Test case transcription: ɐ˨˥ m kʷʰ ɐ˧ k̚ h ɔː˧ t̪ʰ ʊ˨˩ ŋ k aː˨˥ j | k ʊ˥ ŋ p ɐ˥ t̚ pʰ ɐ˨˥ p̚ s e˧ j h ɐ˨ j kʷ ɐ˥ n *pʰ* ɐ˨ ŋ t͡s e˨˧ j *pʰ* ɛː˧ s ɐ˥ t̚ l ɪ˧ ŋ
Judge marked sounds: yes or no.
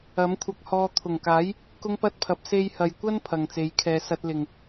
yes, no

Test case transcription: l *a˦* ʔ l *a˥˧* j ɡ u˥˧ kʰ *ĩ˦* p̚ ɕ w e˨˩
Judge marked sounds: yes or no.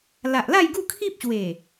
no, yes, no

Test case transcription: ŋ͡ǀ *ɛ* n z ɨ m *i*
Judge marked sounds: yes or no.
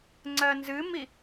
no, yes

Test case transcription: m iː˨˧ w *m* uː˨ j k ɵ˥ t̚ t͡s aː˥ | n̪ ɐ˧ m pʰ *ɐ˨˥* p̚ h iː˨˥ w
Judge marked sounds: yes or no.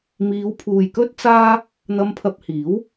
no, no

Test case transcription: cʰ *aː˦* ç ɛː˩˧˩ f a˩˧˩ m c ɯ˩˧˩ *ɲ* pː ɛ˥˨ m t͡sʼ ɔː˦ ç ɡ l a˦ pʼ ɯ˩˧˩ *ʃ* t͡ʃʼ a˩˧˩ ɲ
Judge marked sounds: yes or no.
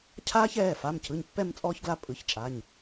yes, yes, no

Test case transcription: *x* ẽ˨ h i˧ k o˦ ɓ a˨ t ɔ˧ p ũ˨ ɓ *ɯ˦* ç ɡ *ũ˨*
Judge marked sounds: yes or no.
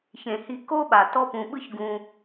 no, yes, no

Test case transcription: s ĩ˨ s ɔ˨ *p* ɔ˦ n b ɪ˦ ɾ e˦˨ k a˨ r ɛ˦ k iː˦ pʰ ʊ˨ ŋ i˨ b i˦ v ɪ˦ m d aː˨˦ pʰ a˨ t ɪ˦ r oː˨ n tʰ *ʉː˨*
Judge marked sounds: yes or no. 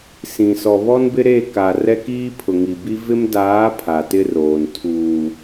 no, no

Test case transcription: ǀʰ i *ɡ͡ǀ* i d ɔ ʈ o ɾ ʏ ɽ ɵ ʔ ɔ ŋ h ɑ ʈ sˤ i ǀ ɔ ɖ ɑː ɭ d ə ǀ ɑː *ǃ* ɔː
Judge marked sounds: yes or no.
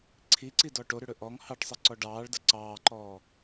no, yes

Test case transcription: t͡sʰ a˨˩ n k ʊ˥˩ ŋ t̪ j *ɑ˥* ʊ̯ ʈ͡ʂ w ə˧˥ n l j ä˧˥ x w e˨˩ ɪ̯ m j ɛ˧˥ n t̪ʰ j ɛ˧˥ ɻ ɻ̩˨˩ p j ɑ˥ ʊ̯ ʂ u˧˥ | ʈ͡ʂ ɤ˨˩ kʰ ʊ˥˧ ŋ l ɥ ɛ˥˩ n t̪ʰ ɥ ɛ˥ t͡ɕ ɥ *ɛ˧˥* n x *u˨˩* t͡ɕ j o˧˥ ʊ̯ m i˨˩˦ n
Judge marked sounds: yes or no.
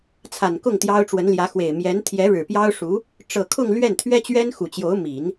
yes, no, yes

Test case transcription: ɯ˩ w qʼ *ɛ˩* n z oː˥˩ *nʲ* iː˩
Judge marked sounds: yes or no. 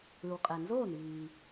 yes, no

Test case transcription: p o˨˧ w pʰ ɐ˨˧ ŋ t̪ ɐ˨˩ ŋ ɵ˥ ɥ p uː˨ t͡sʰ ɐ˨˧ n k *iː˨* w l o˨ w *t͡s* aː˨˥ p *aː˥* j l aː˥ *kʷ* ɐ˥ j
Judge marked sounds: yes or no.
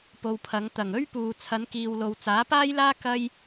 yes, yes, yes, no

